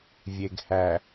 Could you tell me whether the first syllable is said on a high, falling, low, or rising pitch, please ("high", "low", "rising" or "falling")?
low